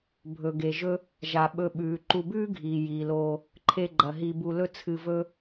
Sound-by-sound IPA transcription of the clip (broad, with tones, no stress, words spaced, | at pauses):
bʱɵ˩ɡe˩ ʒɵ˦ | ʒa˩ɓɵ˨ɓʉː˩ ǃu˨bʉː˥ɡʱiː˩ jiː˩loː˨ | ǃʰe˨ɡ͡ǃɐ˩ ɦi˨bu˨lɵ˦ t͡sʰɨ˨vɵ˦